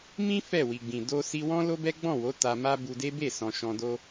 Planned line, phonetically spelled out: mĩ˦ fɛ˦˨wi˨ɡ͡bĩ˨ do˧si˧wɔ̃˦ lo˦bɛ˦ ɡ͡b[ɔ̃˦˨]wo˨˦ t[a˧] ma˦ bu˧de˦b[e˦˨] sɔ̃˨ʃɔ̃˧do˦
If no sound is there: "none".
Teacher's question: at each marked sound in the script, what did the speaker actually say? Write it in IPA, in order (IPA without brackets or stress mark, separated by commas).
ɔ̃˦˨, a˧, e˦˨